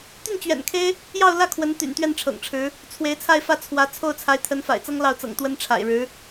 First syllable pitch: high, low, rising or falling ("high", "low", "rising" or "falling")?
falling